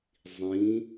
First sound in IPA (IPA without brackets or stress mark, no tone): zˤ